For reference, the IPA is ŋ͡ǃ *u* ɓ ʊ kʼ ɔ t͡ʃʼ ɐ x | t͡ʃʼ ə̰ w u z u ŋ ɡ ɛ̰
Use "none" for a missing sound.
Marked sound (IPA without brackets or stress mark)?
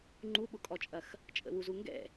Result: u